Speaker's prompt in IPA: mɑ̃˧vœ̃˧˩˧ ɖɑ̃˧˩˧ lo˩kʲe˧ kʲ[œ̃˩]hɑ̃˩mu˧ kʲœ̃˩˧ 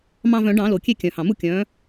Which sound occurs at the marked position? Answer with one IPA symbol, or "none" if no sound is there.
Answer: œ̃˩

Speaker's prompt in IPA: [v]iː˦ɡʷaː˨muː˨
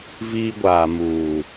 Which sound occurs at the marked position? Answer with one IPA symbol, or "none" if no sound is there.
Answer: v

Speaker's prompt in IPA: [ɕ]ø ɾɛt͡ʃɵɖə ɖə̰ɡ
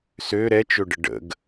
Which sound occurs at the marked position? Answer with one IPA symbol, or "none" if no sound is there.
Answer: s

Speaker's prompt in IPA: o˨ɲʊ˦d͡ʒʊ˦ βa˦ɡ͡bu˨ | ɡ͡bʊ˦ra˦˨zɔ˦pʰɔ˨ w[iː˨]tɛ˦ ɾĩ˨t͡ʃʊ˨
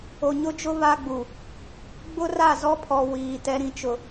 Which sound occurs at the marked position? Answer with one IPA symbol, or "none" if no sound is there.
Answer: iː˨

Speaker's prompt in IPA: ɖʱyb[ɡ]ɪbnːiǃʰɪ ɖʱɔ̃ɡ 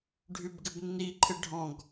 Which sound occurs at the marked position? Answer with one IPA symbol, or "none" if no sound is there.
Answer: ɡ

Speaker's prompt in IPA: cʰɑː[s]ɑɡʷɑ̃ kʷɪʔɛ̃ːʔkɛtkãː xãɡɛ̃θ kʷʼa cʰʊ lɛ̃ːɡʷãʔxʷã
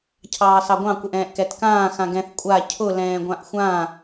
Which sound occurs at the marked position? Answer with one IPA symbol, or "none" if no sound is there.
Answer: s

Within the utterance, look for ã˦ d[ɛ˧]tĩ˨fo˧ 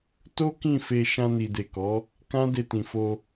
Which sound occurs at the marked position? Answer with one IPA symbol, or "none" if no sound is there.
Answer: e˧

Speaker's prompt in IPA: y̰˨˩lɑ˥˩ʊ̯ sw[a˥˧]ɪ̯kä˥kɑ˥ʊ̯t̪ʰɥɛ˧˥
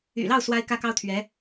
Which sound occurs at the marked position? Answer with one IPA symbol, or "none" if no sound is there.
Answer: a˥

